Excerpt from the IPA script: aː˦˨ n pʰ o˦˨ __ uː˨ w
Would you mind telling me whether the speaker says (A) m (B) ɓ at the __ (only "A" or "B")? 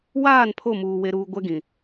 A